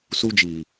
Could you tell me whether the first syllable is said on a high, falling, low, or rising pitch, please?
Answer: high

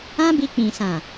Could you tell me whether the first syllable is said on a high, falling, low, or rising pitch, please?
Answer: high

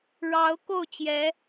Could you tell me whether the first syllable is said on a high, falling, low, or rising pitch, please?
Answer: rising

